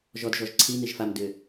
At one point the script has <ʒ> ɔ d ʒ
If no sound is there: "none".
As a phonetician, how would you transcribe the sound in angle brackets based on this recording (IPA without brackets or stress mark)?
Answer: ʒ